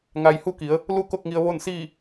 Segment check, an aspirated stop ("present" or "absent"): absent